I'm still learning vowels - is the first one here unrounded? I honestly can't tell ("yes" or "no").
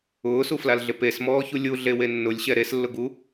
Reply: no